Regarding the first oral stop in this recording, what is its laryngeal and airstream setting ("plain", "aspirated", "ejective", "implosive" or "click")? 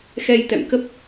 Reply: plain